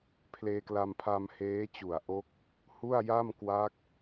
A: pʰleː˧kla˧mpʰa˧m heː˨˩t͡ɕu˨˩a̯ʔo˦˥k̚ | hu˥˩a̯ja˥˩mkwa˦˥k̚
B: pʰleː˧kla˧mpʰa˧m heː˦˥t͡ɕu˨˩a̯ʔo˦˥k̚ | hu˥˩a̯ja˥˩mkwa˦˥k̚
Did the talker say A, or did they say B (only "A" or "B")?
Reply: B